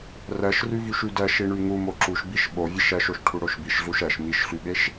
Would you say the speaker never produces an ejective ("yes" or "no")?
yes